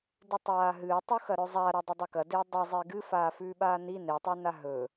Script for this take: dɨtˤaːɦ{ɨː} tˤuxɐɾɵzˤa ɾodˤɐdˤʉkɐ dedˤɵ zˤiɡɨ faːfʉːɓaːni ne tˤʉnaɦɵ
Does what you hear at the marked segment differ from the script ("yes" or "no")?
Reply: no